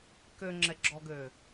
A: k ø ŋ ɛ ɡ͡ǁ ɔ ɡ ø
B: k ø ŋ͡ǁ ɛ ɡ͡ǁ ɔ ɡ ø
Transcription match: B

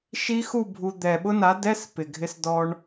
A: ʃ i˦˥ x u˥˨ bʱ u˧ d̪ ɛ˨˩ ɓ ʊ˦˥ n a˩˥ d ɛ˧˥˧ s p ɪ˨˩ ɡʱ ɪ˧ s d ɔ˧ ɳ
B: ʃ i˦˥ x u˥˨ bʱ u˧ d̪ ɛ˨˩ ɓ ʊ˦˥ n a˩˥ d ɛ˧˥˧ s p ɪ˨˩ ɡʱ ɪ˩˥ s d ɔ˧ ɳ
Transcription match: A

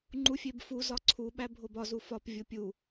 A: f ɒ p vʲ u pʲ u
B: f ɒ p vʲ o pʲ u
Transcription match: B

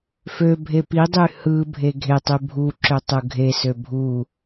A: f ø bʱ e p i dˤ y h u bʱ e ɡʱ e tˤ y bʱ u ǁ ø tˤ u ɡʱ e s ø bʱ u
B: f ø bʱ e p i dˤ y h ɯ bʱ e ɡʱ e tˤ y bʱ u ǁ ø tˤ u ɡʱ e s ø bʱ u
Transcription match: B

